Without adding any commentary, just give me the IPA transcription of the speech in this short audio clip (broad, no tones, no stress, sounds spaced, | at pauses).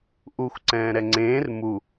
ʔ u xʷ ǀ ɛ̃ː ɾ ɛ ŋ͡ǀ ẽː r m u